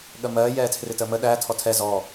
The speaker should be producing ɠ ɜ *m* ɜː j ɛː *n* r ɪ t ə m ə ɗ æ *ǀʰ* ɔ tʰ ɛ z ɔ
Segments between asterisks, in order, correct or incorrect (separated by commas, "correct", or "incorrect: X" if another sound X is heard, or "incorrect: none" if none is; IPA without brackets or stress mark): correct, incorrect: tʰ, incorrect: tʰ